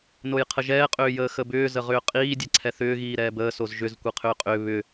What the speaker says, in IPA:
n o j qʰ ə ʒ ɛː qʼ ʏː j əː x ə b ʏː z ə ʁ ʏː qʼ iː dʲ ɛ ǀʰ ɛ θ ʏː ɣ iː ɾ ɛː b əː s o z ʒ ʏ z kʷ e qʰ ʏː qʼ ʏː β ʏ

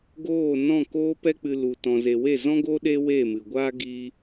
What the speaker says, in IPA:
ɡ oː˦˨ n ɔ̃˦˨ k oː˧ p ɛ˧ k͡p ɨ˨ l u˨ t ɔ̃˨ z e˨ w e˦˨ z ɔ̃˦ ɡ o˦ ɗ e˦ w e˦˨ m ɨ˨ ɡʷ aː˦ ɡ i˦

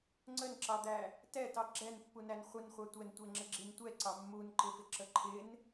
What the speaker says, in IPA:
ŋ͡ǀ ə n ǁ ɑ d̪ æ | t ɛ t ɑ ɡ͡ǁ ɛ n pː u n æ n χʷ ə n χʷ ɑ tʷ ɛ n tʷ ɛ ŋ͡ǁ ə ɡ͡ǁ i n tʷ ɛ ǀ ɑ mː u n ǃ ɪ f ɪ ǁ ə ǃʰ ɪ n

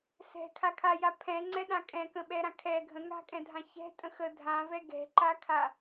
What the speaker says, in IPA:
s ɛ̤ kʰ a kʰ a j a pʰ ɛ̃ ŋ͡ǀ ɛ ɗ ã kʼ ɛ̃ k ə̃ ɓ ɛ ɾ ã kʰ ɛ ɡʱ ə̃ ŋ a̤ kʼ ɛ̃ dʱ ã ç ɛ̤ tʼ ə̃ x ə dʱ ã v ɛ ɡ ɛ̤ ǃ a kʰ a

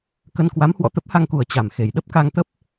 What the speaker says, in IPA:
k ə˧ n k w a˨˦ m h w ɔ̰˧˨ t̪ ə˦˥ p̚ h a˧ ŋ k u˨˩ ə̯ t͡ɕ a˨˩ m x e˨˩ j ɗ ə˦˥ p̚ k a˧ ŋ t̪ ə˦˥ p̚

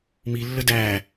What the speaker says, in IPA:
m i lː ə d æ

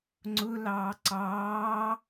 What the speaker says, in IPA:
ŋ͡ǀ ʊ l ɑː ǀ ɑː

